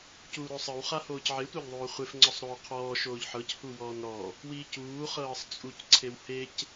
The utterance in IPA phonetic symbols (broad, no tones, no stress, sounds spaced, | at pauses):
c uː ɾ o sˤ ɯ w χ a h oː c ʕ e tʷ a ʎ ðˤ oː χʷ e f ŋ͡ǀ ɔ sˤ ɾ oː qʰ ɔː ʃ oː ʎ ħ ɤ c h u w ɔː n ɾ ɔ | w iː c uː χ ɤː sˤ t͡sʼ u c ǀʰ e w h e c